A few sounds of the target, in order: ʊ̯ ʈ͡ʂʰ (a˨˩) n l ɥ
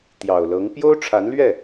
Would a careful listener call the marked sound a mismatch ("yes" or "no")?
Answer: yes